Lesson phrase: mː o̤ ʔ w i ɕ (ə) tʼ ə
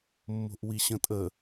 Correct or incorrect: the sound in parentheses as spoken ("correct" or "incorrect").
incorrect